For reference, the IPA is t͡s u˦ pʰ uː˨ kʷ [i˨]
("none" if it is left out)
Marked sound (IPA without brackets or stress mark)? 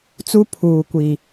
i˨